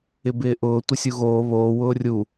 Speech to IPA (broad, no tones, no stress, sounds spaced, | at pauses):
ɪ b ɪː ʔ ʊː tʷ ɪ sʲ u ɣ oː β oː w ʊː rʲ u